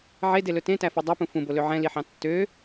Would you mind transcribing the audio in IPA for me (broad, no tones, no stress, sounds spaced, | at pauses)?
ʕ e d e l ɵ t ẽ t æ f ø dˤ œ p ũ f ũ b o l ø ʕ ɛ̃ l i ħ ɑ̃ tː ø